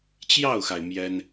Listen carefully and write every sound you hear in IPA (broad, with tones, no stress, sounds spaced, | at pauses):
t͡ɕ j ɑ˥˩ ʊ̯ x a˩ ɪ̯ m j ɛ˥ n